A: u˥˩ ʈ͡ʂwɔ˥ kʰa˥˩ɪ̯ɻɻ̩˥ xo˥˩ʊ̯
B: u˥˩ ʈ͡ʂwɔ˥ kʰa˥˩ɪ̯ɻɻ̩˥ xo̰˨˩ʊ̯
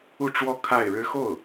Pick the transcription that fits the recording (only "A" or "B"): A